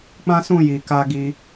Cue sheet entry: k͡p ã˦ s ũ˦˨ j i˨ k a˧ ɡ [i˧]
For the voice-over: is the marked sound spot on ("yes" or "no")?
yes